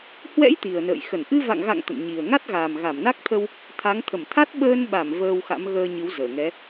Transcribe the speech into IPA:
h w ɛ̰˧˥ j t̪ i˨˩ ə̯ n ə̰ː˧˨ j x ə˧˩ n ʔ ɨ˧ v a̰˧˨ ŋ ɣ a̰˧˨ ŋ t̪ ə̰˧˨ n ɲ i˨˩ ə̯ ŋ a˦˥ t̚ ɣ a˨˩ m ɣ a˧˩ m n a˦˥ k̚ t̪ʰ ə˧ w | t̪ʰ a˨˦ ŋ t̪ʰ ə˧˩ m t̪ʰ a˦˥ t̚ ɓ əː˧ n ɓ a˧˩ m v əː˧ w x a̰˧˥ m ɣ əː˧ ɲ ɨ˨˦ w z əː˧˩ ŋ ɛ˨˦

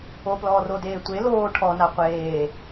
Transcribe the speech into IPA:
o p l ɔː r o d eː tʷ e l oː ʈʰ ɔ n a qʷ eː

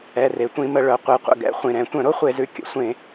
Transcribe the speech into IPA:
ɛ˩˧˩ r e˩˧ tʷ ĩ˧˩˧ m ə˧˩˧ ɭ œ˩˧ qʷ i˩˧ qʷ ə̰˩˧˩ ɡ ɛ̰˩˧ χʷ ĩ˩ ɾ ɛ̃˧˩˧ tʷ œ̃˧˩˧ ɾ o˥ χʷ e˧˩˧ z ʉ˩ kʲ ə̰˩˧ sʷ ẽ˧˩˧

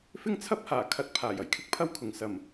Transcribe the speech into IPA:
f ɪ˥ ŋ t͡sʰ ɐ˥ p̚ h aː˨˩ kʰ ɐ˧ t̚ pʰ aː˨˩ j ɐ˨˩ j kʰ ɪ˥ k̚ pʰ ɐ˥ w kʰ ʊ˨ ŋ s ɐ˨˩ m

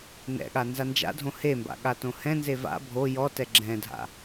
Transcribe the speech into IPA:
n ɛ̰ ɠ a n z a n d͡ʒ a̰ dʱ õ h e m b a̰ ɠ a t õ h ɛ̃ n z e v a̰ bʱ o j ɔ t ɛ ɡ͡ǁ ɛ̃ dʱ a̰

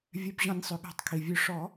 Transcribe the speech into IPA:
vʲ ɛ˩˧˩ b ʑ ɔ̃˨˩˦ nʲ sˤ ø˩ ɠ æ̤˨˩˦ tˤ kʰ i˩ vʲ ø˨˩˦ ʂ ɔ˨˩˦

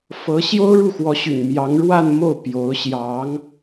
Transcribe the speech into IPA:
f ɤ˧˥ ɕ j o˥ ʊ̯ ɻ u˥˩ x w ɔ˧˥ ɕ y̰˨˩ n m j ɑ˧˥ ŋ ɻ w a˥˧ n m o˥˩ ʊ̯ p j o˧˥ ʊ̯ ɕ j ɑ˧˥ ŋ

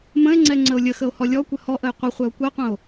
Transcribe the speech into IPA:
m ə̃ e̯ ŋ͡ǀ ɛ ŋ͡ǀ ə o̯ lʲ ə x ə o̯ h ɔ lʲ ɔ kʷ ə h ɔ ʔ ə j qʷ ə χʷ ɛ o̯ kʷ ɛ qʷ ə̃ o̯

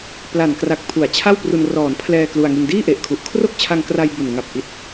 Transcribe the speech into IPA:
p l a˨˩ n k r a˨˩ k̚ pʰ u˩˦ a̯ t͡ɕʰ a˥˩ w p r u˧ n r ɔː˩˦ n pʰ l ɛː˧ k l u˧ a̯ ŋ i˧ n d iː˥˩ ʔ e˨˩ ʔ kʰ u˨˩ ʔ kʰ r o˥˩ k̚ t͡ɕʰ a˧ ŋ k r a˧ j b u˨˩ n ŋ a˨˩ p̚ ʔ i˨˩ t̚

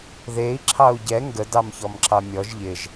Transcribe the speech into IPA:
ð e i̯ ǁʰ ɑ u̯ ɟ ɛ ŋ ɡ ə d ɑ m ç ɔ m ǁ ɑ mʲ ɔ ʒ ʎ ɪ ʒ

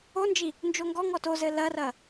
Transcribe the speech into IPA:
o n d͡ʒ i | n d͡ʒ o ŋ ɡ ɔ ŋ ɔ t o z ɘ l ɐ r ɐ

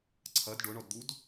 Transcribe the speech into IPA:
ǀʰ ɐ d ɖ ʊ ɳ ɔ d d̪ u d

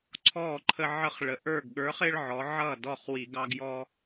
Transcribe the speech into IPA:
ǀʰ ɔ˥˩ ǃʰ ə˦ ʕ ə˦ χ ɭ ə˩˧ ʔ ə˞˥˩ ɡ ɠ ə˞˨˥ χ ɪ˦ ɭ ʕ ɔ˩˧ ʕ ʌ˥˩ d ɔ˥˩ χ w i˧˩˧ ɡ ɑ˦ ɡ j ɔ˦

